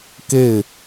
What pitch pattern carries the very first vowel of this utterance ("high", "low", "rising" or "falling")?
falling